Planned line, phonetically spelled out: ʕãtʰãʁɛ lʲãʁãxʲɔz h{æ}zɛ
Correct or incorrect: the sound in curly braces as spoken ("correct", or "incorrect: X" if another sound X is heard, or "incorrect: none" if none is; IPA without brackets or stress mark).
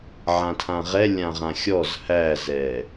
correct